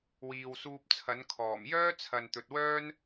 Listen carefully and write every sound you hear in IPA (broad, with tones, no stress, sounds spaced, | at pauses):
w iː˨ w s uː˧ p̚ t͡sʰ ɐ˨˥ n kʰ ɔː˨˩ m j œː˥ t͡sʰ ɐ˨ n t̪ ɵ˨ t̚ w œː˥ n